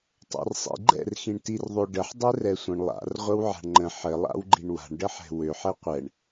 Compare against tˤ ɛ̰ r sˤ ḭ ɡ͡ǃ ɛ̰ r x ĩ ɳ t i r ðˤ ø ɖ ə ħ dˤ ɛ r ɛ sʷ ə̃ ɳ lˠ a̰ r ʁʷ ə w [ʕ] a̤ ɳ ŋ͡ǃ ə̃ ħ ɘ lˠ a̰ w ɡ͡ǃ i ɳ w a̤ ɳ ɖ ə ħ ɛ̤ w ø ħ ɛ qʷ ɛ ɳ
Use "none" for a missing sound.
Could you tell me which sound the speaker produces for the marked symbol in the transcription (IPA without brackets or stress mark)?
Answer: ʕ